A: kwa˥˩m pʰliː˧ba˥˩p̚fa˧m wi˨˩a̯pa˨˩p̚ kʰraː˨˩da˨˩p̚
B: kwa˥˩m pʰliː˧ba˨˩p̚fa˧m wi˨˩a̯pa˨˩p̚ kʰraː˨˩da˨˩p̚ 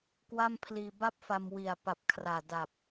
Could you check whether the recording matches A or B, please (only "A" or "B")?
A